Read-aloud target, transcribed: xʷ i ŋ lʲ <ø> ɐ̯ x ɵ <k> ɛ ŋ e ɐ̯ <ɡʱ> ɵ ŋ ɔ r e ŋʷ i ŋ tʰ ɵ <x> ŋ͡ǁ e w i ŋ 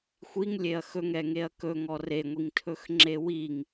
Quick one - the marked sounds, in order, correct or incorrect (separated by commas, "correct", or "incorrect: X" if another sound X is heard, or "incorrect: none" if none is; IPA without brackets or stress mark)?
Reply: incorrect: e, incorrect: ŋ, incorrect: k, correct